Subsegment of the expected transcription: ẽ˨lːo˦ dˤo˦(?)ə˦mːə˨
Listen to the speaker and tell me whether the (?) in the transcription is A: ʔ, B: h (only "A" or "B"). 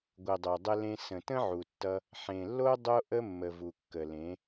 A